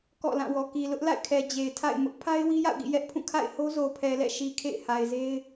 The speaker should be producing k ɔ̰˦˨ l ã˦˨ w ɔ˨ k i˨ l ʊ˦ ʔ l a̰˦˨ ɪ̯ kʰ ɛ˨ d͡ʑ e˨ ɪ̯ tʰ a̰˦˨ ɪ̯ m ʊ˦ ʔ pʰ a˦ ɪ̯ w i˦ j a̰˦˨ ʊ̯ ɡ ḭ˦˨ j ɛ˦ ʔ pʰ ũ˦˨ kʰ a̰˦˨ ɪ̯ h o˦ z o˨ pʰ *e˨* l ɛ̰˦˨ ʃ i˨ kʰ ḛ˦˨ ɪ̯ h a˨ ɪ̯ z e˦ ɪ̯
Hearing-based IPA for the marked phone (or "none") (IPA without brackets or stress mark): ɛ˨